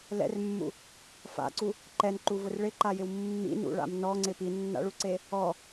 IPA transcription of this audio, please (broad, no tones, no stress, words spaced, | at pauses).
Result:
lɛ̰rmːṵ | fa̰ǀu | ǃɛnǃuvʊr ɭɪǃajɪw mːḭnṵɭa̰m nɔŋ͡ǀɪ pinːa̰ɭuǀe | ɔ